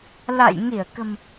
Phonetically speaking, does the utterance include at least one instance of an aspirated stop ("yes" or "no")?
no